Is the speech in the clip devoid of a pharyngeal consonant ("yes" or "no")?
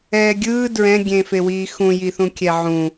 no